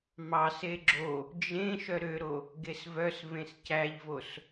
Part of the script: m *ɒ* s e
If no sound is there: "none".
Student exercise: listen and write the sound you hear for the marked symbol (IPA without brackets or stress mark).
ɑ